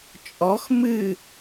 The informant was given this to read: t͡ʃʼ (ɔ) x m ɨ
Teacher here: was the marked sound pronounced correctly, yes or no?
yes